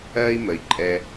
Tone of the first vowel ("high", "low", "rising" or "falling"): high